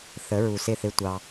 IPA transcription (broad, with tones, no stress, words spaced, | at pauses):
θə˨˦ɹu˨sɪ˦˨ θɪ˦tʷɑ˧